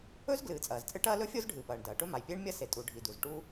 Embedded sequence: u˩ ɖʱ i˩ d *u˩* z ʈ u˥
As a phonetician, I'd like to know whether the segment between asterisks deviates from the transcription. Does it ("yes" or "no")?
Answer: no